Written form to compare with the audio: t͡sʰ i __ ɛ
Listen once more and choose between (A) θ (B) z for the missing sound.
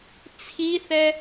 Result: A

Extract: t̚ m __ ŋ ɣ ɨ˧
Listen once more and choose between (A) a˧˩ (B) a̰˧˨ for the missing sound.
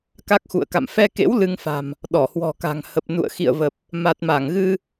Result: A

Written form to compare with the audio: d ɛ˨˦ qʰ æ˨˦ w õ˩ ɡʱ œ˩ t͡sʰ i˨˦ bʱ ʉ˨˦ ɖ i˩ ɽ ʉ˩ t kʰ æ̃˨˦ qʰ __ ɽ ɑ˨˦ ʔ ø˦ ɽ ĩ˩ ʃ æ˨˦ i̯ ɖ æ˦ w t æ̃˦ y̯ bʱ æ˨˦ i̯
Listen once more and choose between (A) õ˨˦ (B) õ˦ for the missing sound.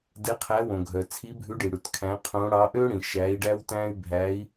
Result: A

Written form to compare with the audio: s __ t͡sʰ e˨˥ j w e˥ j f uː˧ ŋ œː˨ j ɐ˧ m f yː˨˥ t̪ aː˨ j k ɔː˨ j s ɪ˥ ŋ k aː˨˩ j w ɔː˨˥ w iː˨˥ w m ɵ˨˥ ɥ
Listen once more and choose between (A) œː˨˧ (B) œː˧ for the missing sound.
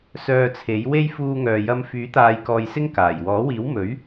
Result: B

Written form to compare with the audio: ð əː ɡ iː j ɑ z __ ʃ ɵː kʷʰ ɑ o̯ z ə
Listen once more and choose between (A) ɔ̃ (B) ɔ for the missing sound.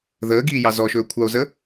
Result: B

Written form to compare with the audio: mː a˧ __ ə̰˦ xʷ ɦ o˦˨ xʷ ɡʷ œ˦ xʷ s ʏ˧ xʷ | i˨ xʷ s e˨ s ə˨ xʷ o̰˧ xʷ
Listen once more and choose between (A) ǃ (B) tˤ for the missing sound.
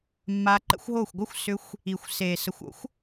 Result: A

